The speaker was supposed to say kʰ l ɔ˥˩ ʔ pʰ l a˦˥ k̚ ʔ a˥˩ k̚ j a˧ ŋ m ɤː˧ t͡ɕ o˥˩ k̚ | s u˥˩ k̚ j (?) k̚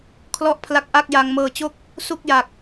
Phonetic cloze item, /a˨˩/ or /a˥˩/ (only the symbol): a˨˩